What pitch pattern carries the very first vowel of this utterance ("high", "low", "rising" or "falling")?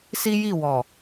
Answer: high